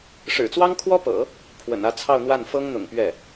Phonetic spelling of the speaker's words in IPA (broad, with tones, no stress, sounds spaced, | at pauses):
ʂ ɻ̩˨˩ t͡s w ɑ˥ ŋ kʰ w ɔ˥ p ɤ̰˨˩˦ | pʰ w ə̰˨˩ n ä˥˧ t͡sʰ ɑ˥˧ ʊ̯ n̪ w a˥˩ n f ɤ˥ ŋ n̪ ʊ̰˨˩ ŋ p ɥ ɛ˥˩